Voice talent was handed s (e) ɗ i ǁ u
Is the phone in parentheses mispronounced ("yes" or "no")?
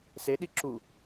no